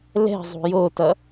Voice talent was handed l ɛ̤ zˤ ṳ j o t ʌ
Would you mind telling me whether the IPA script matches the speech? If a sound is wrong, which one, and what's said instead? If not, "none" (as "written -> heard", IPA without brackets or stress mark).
none